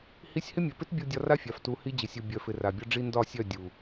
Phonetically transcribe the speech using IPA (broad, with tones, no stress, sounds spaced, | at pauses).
h i˧ sʲ h ɪ˦ mʲ œ˨ p ɪ˦ t bʲ u˧ dʲ ɒ˧ r a˦ fʲ a˨ f t u˧ h i˦ d͡ʑ ɪ˨ sʲ u˨ bʲ œ˨ f ɪ˨ r a˨ bʲ ɒ˦ ɖ͡ʐ i˦ n d ɒ˦˨ sʲ œ˦˨ dʲ u˨